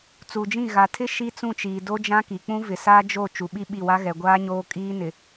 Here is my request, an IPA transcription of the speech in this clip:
t͡s u˨ d͡ʒ ĩ˦˨ ɣ a˨ tʰ ɪ˦ ʃ i˦ t͡s ũ˦˨ t͡ʃ iː˨ d o˦ d͡ʒ ã˦ k i˨ k͡p ũ˦ v ɪ˨ s a˦ d͡ʒ o˦˨ t͡ʃ u˨˦ ɓ i˦ ɓ i˦˨ w a˦ ɣ ɛ˨ ɡʷ aː˦ ɲ oː˦ kʼ iː˦ n ɪ˨

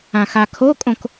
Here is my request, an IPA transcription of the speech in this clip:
ã x a kʰ o kʼ õ k

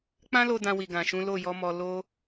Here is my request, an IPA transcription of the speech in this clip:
k͡p ã˦ l o˧ d ã˧ w i˨ ɡ ã˨ ʃ ũ˨˦ l o˦˨ j ɔ˨˦ m ɔ˧ l o˦

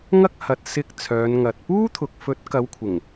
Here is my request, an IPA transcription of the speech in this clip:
ŋ ɐ˥ k̚ h ɐ˧ t̚ s ɪ˧ k̚ t͡sʰ œː˨˧ n ŋ ɐ˨ t̚ p uː˥ t̪ʰ ʊ˨ k̚ f ɵ˨˥ t̚ k ɐ˨˧ w kʷʰ ɪ˨˩ ŋ

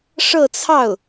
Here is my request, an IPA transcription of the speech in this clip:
ʂ ɤ˥˧ t͡sʰ ɑ˥˩ ʊ̯

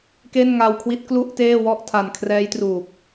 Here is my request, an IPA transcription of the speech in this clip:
k e˥˩ n ŋ a˧ w kʰ w i˦˥ t̚ k l u˥˩ ʔ t eː˥˩ w ɔ˥˩ ʔ tʰ a˨˩ n kʰ r ɛː˦˥ j t r uː˨˩ k̚

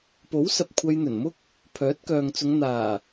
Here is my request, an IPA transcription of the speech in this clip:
p o˨˥ w s ɐ˨ p̚ kʷʰ ɐ˧ j n̪ ɵ˨˩ n m ʊ˥ k̚ | pʰ œː˨˥ t̚ k œː˨ ŋ t͡s ʊ˨˧ ŋ n̪ aː˨˩

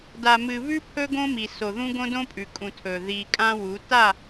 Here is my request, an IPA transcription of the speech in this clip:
d a˨ m ɨ˨ β ʉ˦ pʰ ɵ˦ ɡ õ˦ m i˨ s o˨ ð ũ˦ ɡ õ˦ d õ˦ pʼ ʉ˨ kʼ ũ˨ tʰ ɵ˨ ð i˨ kʼ ã˦ w u˨˦ t a˦˨

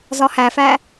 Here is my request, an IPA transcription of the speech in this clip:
z ɒ h æ f æ

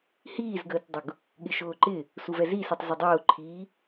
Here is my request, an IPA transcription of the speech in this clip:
h iː z ɡ əː t dˤ ʊ ɡ | ɠ ɪ ʃ ʊː ǃ ɪ | s u v ɛ z i s i tˤ z ɪ dˤ ʊː ǃʰ iː

